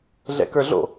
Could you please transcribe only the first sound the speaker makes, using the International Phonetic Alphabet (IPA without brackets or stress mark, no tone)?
ɮ